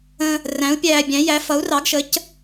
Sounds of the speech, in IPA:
ə̃˧ | r æ̃˨˥ u̯ pʲ æː˧ bʲ æ̃˨˥ j æ˨˥ f ʌ˨˥ u̯ r ɑ˨˥ ɡ ʃ ə˨˥ c

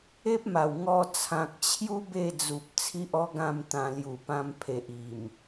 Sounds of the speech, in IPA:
e˦ p̚ m a˨˩ w ŋ ɔ˧ t͡sʰ ã˨ k̚ t͡ɕʰ j u˦ b e˥˧ d͡z u˨ p̚ t͡sʰ i˦ ʔ ɔ˦ ɡ ã˥˧ m t̪ ã˧ l j u˨˩ p ã˧ m pʰ e˨ ʔ i˨˩ m

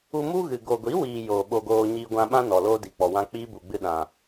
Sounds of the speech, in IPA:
u˧ m u˦ ɣ ɨ˨ ɡ o˨ ɡʷ i˨˦ w iː˨ j oː˨ ɓ o˧ ɡ oː˧ ɲ iː˧ ɡʷ ã˧ ɓ ã˦ n ɔ˨ l oː˦ d i˨ k͡p ɔ˨ w ã˦ k͡p iː˦ b u˨ ɡ͡b ɨ˧ ɗ ã˨

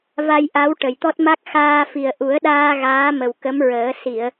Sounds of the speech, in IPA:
v a˧ j ʔ a˧˥ w ʈ ə˨˩ j t̪ ɔ˦˥ t̚ m a˦˥ k̚ x aː˧ f i˨˩ ə̯ ʔ u˨˩˦ ə̯ ɗ aː˧ ɣ aː˧˥ m ə˨˩ w k ə˧˥ m ɹ əː˨˩˦ s i˨˩˨ ə̯

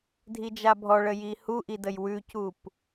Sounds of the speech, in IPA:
dʱ i d͡ʒ a bʱ ɔ ɭ ə j i h u ʔ i d ə j w ʉ c u p

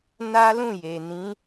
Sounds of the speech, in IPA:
n a˦ l ũ˦˨ j e˨ n ĩ˨˦

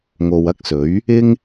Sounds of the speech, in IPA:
ŋ o˨ w ɐ˥ k̚ s ɵ˨˥ ɥ | ɪ˥ ŋ

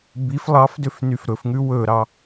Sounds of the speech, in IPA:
b i f lˠ ɑ f d ø f n y f ɾ ɵ f ŋ ʉ w ɵ ɾ ɑ

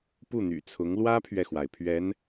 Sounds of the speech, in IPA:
p u˥˩ n̪ y̰˨˩ t͡sʰ ʊ˧˥ ŋ l w ä˥ pʰ ɥ ɛ˨ x w a˩ ɪ̯ pʰ ɥ ɛ˧˥ n

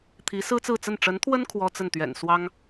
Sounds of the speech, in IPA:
t̪ʰ i˧˥ s ɹ̩˥ t͡s ɹ̩˥˧ t͡s ə˥˩ n ʈ͡ʂ ə˧˥ n t̪ʰ w ə˥ n kʰ w ɔ˥ t͡s ə˥˩ n t̪ ɥ ɛ̰˨˩ n s w ɑ˥ ŋ

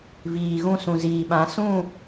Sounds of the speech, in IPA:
v iː˨ ɣ ũ˦ s ũ˨ z iː˨ ɓ ã˨˦ s ũ˦˨

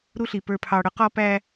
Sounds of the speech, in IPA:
ɾ u˦ ɬ i˨ p ə˞˨ pʰ ɑ˨ ɽ ʊ˦ q ɔ˦ p æ˦

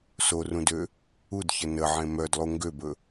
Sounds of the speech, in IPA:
s o r ũ d ø | u d ç ə n ə ʕ ẽ m œ d lˠ u ŋ ɡ ø b ɵ

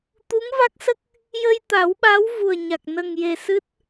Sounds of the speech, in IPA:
t̪ u˧˥ ŋ v a˦˥ k̚ s ə˦˥ k̚ | j ə˧ j t̪ a˨˩˦ w ɓ a˧˥ w v u˨˩ ə̯ ɲ a˨˩ k̚ n ə˨˩ ŋ j e˨˩ s ɨ˦˥ t̚

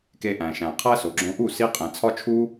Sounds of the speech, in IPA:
k e˧ ʔ æ̃˨ ʃ æ̃˨ qʰ æ˦ s o˨ ɡ͡ǁ õ˧ ʔ u˦˨ s i˧ qʼ ẽ˨ t͡sʰ ɒ˦ t͡ʃʰ u˦

